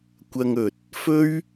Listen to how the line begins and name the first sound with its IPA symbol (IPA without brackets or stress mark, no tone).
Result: kʷ